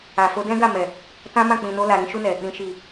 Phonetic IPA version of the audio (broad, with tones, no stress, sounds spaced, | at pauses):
a˨ f o˧ d ɛ̃˦ ɡ a˦˨ m ɛ˨ | t ã˦ m ã˦˨ k͡p ĩ˨ n o˧ l a˨ ɾ ĩ˧ ʃ u˧ n ɛ˨ | ɾ ĩ˨ ʃ i˨